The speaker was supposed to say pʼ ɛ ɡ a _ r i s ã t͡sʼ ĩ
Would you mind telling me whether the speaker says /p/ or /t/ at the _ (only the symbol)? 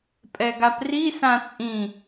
p